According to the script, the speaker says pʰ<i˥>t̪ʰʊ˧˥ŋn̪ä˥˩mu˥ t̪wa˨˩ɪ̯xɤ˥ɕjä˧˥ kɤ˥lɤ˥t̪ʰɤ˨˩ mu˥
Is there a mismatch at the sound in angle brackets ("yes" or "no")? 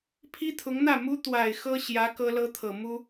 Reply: no